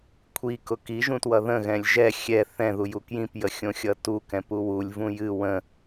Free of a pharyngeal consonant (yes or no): yes